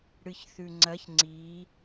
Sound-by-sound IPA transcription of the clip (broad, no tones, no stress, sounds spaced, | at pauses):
ɽ ɨ ç θ ʉ ŋ͡ǀ ɐ ç ŋ͡ǀ i